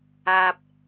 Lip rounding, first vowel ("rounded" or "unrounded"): unrounded